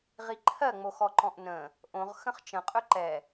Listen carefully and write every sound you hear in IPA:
ʁ i ǃʰ ɜ ŋ͡m o x ɔ ǃ ɔ̃ ʔ n ə̃ | ʔ õ ʁ x ə̃ χ t͡ʃ ə̃ qʼ ɵ ǃ ɛ

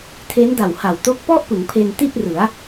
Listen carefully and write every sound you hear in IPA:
tʰ e˦˥ n d a˨˩ w h a˨˩ w t o˦˥ k̚ p ɔ˥˩ ʔ p ɯ˩˦ ŋ pʰ e˧ n t i˥˩ t̚ r ɯ˩˦ a̯

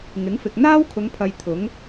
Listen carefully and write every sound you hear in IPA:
ŋ ɪ˨˥ ŋ f ɪ˨ k̚ n̪ aː˥ w kʰ ʊ˨˧ ŋ pʰ ɐ˧ j t̪ʰ ʊ˨˥ ŋ

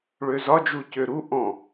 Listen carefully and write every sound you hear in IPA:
ɭ ø z ɒ d͡ʒ u c ø ɾ u ʔ ɔ̃

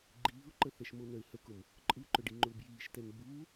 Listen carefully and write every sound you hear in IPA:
ɡ͡ǃ iː ʊ̯ ǃ ə θ ɛ ʃ m o n œ ɪ̯ h ə k ʊ m | ǃʼ ɯ ǃ œ ɖ i ŋ͡ǃ ʊː b j iː ʃ t ɛ n b uː

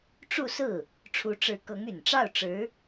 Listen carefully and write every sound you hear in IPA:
ʈ͡ʂ u˥˧ s ɹ̩˥˩ | ʈ͡ʂʰ u˧˥ ʈ͡ʂ ɻ̩˧˥ k ɤ˧˥ ŋ y˨˩ n ʈ͡ʂ ɑ˥˩ ʊ̯ ʈ͡ʂ ɻ̩˧˥

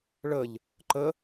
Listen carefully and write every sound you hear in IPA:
ɭ ə ʎ | ǃ ə

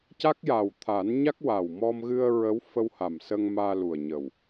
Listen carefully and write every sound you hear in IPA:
c a˦˥ k̚ j aː˨˩ w t̪ʰ aː˨˩˦ n ɲ a˦˥ k̚ w aː˨˩ w m ɔ˧ m ɣ ɨ˧ ə̯ ɹ ə˧˥ w f ə˧ w h a˨˩ m s ə˧ ŋ m aː˧ l u˨˩ ə̯ ɲ ə˨˩ w

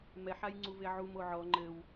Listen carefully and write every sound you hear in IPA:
m ɛ ħ a j ŋ͡ǀ u v e ʕ u m o ʕ ɔ ŋ͡ǃ ɘ w

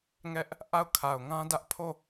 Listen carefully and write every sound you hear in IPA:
ŋ ɛ˦ ʔ | ʔ a˦˨ ʊ̯ kʰ a˨ ʊ̯ ŋ ã˦ d ä˦ ʔ pʰ o˦˨

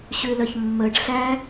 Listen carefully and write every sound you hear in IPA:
ɕ ʉ l ə ç mː ə ɖ ɬ æ

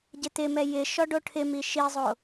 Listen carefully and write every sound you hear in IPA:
ɟ ɪ t̪ ɪ m ɛ j ɪ ʃ ɔ ɖ o ʈʰ ɪ m i ʃ i zˤ o

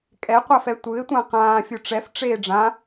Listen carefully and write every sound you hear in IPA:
kʼ ɛ qʷ a f ɛ tʷ ɯ ɪ̯ tʷ ã q ãː fʲ u ʈ͡ʂ ɛ f ʈ͡ʂ eː ɖ͡ʐ ã

